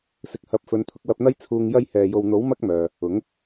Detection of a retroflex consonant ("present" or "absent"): absent